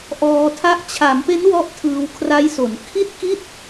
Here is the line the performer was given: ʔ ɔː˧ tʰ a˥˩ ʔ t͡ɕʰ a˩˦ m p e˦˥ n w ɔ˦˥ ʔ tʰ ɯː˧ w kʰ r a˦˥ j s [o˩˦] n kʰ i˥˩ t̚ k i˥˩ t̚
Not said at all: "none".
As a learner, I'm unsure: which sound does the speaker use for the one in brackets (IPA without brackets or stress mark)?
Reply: o˩˦